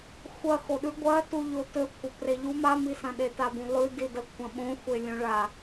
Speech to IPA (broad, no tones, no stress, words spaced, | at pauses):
xʷɐ xoɗʉ ɡʷɐtu ʎotɵkʷʰɐ preʎu mamisɐ̃ ɗetabũlˠʉ didɐkʷʰɐ̃ɓõ xʷelʲõɭa